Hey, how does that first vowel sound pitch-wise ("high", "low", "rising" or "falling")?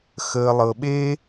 low